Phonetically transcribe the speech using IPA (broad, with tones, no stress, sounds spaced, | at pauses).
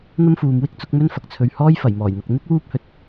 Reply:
n̪ ɐ˥ m f uː˨ m w ɪ˥ k̚ t͡s ʊ˨˥ k̚ m ɵ˥ n f ɐ˨ k̚ t͡sʰ ɵ˧ ɥ h ɔː˥ j f ɐ˨˩ j m ɔː˨˩ j n̪ ɐ˨ k̚ n̪ ɪ˥ k̚ w uː˥ p̚ h ɵ˨ t̚